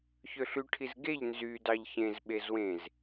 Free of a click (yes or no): yes